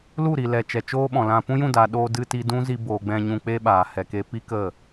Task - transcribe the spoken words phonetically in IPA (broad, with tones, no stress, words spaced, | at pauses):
lu˦˨ɾi˨lɛ˨ t͡ʃɛ˨t͡ʃoː˦ɓɔ̃˨lã˧ pũ˦jũ˦˨daː˨ ɗoː˧dɨ˧ ti˧dũ˦ zi˧boː˨ ɡ͡bɛ̃˧ ɲũ˧k͡pe˦ɓaː˨ hɛ˨ke˧ pi˦ kə˦˨